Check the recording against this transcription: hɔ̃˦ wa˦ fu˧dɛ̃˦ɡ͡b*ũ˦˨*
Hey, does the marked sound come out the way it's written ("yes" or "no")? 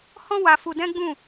yes